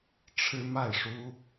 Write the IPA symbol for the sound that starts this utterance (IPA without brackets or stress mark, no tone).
ʈ͡ʂʰ